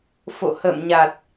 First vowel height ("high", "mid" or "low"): mid